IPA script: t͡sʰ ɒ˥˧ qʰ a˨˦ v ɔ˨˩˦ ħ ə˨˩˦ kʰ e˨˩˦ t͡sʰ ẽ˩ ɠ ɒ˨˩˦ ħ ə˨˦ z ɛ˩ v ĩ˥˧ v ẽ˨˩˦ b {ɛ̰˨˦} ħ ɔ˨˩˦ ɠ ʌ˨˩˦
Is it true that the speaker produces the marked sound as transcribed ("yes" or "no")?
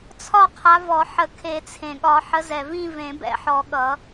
yes